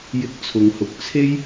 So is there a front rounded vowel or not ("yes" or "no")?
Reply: no